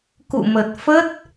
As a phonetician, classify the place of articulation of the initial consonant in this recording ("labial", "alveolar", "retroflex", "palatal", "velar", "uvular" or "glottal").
velar